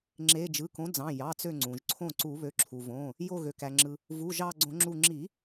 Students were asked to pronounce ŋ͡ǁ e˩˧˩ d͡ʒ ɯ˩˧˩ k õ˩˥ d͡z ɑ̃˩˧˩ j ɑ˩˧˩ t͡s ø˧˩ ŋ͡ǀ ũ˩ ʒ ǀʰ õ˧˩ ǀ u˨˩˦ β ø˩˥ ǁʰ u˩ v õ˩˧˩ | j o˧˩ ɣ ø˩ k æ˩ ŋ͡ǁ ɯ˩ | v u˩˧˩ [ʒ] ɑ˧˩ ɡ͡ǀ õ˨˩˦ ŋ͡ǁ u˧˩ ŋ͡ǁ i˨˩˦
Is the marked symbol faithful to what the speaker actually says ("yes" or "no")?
yes